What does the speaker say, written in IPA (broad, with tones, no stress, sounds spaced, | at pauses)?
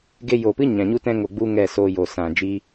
ɡ e˧ j o˨ p ɨ˦ ɲ ã˨ ɲ u˦ t ɛ̃˦ ŋ o˧ ɡ͡b u˦ ŋ ɛ˦˨ s oː˧ j o˨ s ã˨ d͡ʒ iː˦